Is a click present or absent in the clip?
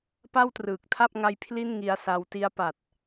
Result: absent